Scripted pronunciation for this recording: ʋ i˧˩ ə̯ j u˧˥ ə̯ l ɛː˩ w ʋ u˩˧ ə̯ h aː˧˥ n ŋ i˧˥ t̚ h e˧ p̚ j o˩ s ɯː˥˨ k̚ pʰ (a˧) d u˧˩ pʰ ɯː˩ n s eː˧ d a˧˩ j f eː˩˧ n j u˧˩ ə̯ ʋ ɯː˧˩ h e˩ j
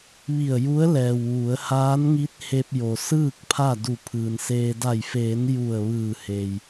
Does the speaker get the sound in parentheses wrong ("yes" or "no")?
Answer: yes